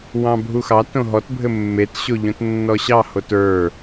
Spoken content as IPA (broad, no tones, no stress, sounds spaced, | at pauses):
w ɑ̃ bʱ u x ɑ t õ ɦ ɔ t bʱ ɘ mː e t ɕ o ʎ õ t nː ɔ ɕ ɑ h o t ə˞